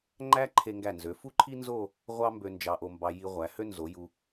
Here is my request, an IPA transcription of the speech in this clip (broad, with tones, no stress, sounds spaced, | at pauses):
ŋ͡ǃ æ˥ ǃʰ e˧ ŋ ɡ æ˧˩ n z ø˩˧ f u˥ ǃʰ i˥ n z o˥˧ | ʁʷ ɑ˥ m b ø˧ n d͡ʒ ɑ˧ ʔ o˧ m b ɑ˧ j i˧ ʁʷ æ˩˧ h ø˥ n z o˩˧ j u˧